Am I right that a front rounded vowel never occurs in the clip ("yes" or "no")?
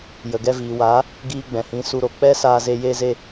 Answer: yes